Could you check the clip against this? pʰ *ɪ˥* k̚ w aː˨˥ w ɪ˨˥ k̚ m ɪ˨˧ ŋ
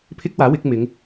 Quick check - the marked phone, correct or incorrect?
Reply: correct